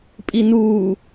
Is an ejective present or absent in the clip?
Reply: present